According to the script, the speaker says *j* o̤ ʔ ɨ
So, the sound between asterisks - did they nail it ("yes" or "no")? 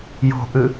yes